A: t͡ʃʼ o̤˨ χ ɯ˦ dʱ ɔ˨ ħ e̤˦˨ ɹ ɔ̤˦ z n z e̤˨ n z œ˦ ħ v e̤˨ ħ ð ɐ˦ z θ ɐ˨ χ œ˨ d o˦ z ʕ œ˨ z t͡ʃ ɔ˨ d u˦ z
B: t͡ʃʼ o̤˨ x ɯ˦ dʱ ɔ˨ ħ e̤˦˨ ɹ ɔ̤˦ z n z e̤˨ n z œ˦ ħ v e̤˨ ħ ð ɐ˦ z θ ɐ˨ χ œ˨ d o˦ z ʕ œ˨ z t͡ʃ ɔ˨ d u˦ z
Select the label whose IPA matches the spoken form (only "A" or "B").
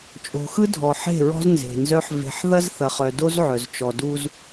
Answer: B